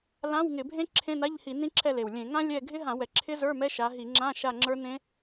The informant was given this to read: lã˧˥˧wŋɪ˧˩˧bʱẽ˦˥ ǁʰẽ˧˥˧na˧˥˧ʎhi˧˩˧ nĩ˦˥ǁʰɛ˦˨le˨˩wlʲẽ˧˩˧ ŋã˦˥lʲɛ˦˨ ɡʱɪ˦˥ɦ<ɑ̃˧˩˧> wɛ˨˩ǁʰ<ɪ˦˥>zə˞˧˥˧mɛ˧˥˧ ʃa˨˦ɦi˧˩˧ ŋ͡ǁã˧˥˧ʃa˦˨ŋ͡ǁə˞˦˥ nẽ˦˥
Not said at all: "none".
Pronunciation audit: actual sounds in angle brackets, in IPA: ã˧˩˧, ɪ˦˥

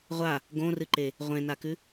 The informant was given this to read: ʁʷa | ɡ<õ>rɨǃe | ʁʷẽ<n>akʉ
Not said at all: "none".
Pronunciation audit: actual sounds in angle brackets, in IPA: õ, n

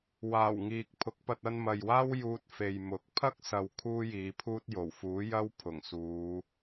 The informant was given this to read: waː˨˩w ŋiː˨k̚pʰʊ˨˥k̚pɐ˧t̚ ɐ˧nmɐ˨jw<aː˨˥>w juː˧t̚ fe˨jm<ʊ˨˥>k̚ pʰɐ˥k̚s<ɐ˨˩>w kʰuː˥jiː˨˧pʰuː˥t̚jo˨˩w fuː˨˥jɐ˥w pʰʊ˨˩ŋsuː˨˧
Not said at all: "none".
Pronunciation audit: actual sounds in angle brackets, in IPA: aː˥, ʊ˨˥, ɐ˨

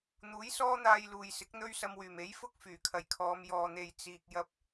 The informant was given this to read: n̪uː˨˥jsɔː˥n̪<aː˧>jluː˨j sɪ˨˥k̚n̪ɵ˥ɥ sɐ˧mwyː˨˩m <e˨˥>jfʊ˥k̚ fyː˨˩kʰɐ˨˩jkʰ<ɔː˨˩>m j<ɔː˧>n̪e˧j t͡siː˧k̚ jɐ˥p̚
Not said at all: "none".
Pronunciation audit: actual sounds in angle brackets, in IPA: aː˧, e˨˥, ɔː˨˧, ɔː˧

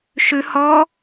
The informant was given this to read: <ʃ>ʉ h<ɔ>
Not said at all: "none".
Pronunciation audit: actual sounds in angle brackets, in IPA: ʃ, ɔ

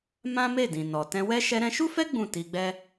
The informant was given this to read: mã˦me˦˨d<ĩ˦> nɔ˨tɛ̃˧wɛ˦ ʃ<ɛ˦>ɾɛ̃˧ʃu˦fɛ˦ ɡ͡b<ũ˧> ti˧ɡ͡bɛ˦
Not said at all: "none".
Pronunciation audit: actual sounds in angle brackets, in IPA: ĩ˨, ɛ˧, ũ˦˨

